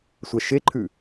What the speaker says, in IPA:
sʷ ɐ ʃ e ǃʰ ʉ

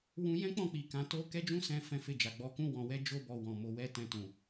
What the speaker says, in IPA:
w ũ˧ j ɛ̃˦ k͡p ɔ̃˦˨ k͡p i˨ k ã˨˦ t o˦ k ɛ˦ d͡ʒ ũ˦ s ɛ̃˧ f ɛ̃˧ f e˧ d͡ʒ a˨ ɡ͡b ɔ˧ k ũ˦ w ɔ̃˧ w ɛ˦ d͡ʒ o˦ b ɔ˧ w ɔ̃˨ m o˧ w ɛ˦ t ɛ̃˧ t ũ˨

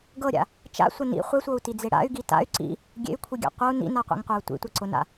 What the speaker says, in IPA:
ɡ ɤ ɾʲ a̰ | t͡ʃ a̰ sʷ ɐ n ḭ χʷ e sʷ ɤ u̯ t i d͡z e ɽ a̰ y̯ ɡ i t a̰ y̯ ǀ ḭ | ɡʲ ḛ y̯ kʷʰ i ɡʲ a̰ qʷ ɤ u̯ n ḭ n a qʷ ḭ ŋ qʷ ɐ u̯ tʷ ḭ tʷ ɐ ǀ ʊ n a̰

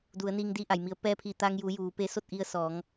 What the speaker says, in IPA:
d u˩˧ ə̯ n iː˧ ŋ d iː˧ ʔ a˩ j m i˩˧ ə̯ p ɛː˧ pʰ i˧˩ t̪ aː˧ ŋ j uː˩˧ j uː˩˧ p e˧˥ s o˥˨ t̚ ʔ i˧ ə̯ s ɔː˩˧ ŋ

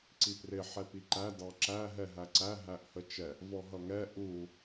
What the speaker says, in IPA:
ǀ i p r ɪ ħ ɛ p i ǃ æ d ɑ ǁ æ ɦ ɛ ɦ æ ǀ æ ɦ æ ʔ h ə t͡ʃ ɛ | v ɔ ɦ ʌ ŋ ɛ ʔ u

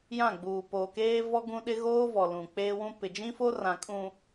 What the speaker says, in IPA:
j ã˦˨ ɡ͡b uː˨ p oː˨ k eː˦ v ɔ˦ ɡ ũ˦ ɗ ɪ˦ ɣ oː˦ v ɔ˨ l ũ˨ k͡p eː˦ w ũ˦ p ɪ˨ d͡ʒ ĩ˦ f o˦ r ã˨ kʼ ũ˨

